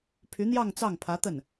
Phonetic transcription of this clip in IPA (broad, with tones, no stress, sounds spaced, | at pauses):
pʰ y˧˥ n̪ j ɑ˥˧ ŋ t͡s ɑ˥˩ ŋ pʰ ä˧˥ t̪ ə˥˩ n